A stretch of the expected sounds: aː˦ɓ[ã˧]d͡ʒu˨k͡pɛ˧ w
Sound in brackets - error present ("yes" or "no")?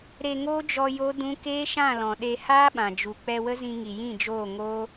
yes